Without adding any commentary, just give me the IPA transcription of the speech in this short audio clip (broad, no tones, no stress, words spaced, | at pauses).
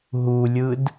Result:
ɦulʲɯd